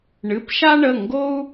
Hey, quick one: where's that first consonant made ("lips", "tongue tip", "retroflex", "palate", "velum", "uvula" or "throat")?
retroflex